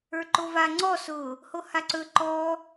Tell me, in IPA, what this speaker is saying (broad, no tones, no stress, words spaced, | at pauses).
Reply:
ə˞ǃova ŋ͡ǀɔ sʊ | hohaǀɵ ǃɔ